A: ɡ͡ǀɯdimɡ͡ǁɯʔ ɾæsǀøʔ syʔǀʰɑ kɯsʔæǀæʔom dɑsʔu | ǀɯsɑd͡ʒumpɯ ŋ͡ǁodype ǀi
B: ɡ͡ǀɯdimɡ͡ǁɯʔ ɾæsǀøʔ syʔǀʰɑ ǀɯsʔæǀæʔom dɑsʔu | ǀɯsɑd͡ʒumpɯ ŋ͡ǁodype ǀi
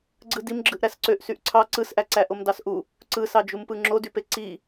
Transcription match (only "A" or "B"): B